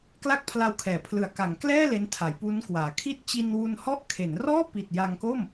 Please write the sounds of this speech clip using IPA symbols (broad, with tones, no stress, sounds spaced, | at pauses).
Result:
k l a˥˩ k̚ pʰ l a˧ w kʰ ɛː˩˦ pʰ l ɯ˨˩ a̯ k a˩˦ ŋ k l ɛː˥˩ l e˦˥ n tʰ a˩˦ j p u˦˥ n k w aː˩˦ kʰ i˦˥ t̚ t͡ɕ i˧ n w u˧ n h ɔ˥˩ ʔ kʰ e˩˦ n r ɔː˥˩ p i˨˩ t̚ j a˧ ŋ k o˥˩ m